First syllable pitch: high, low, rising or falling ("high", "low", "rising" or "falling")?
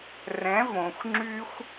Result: rising